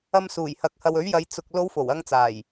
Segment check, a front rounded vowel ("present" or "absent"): absent